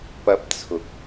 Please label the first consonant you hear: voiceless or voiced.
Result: voiceless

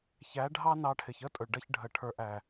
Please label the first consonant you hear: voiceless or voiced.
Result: voiceless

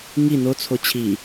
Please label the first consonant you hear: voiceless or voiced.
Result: voiced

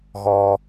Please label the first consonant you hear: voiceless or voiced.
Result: voiced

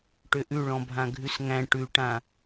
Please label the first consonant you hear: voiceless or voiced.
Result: voiceless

